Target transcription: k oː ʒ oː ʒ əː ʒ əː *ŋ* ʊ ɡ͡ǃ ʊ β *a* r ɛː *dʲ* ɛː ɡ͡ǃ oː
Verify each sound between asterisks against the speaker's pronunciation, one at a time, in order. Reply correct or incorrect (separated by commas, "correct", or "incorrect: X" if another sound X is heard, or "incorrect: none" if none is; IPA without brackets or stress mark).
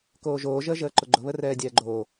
incorrect: ǃ, incorrect: ə, correct